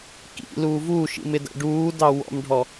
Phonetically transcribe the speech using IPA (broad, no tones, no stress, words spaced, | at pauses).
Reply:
kḭ luːvuːʃḭm ɪdæ̰ɖuːdɑ wɔ̰mɖʱɔ